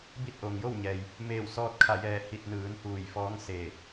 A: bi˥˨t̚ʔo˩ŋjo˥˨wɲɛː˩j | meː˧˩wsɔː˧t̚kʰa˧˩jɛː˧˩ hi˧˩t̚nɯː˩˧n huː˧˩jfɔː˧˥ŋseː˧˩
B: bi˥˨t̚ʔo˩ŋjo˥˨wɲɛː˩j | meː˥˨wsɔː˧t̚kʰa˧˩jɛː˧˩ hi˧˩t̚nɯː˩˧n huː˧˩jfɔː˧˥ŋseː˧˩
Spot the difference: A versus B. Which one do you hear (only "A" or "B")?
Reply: A